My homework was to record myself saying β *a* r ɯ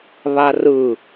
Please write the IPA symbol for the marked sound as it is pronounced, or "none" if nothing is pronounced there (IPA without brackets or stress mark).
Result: a